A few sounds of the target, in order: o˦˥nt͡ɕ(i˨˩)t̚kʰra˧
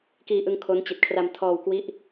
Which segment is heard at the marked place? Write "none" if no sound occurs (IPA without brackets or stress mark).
i˨˩